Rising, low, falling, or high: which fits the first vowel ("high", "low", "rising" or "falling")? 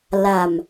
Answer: low